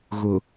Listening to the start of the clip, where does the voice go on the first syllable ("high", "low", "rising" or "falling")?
low